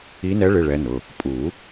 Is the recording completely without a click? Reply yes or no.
yes